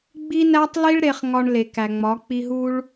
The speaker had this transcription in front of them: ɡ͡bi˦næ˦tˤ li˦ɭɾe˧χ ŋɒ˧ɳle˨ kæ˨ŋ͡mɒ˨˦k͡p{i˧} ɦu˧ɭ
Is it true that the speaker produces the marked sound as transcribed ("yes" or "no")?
yes